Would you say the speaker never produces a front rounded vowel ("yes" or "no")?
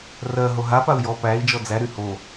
no